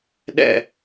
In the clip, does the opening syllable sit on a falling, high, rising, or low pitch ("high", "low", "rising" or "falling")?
falling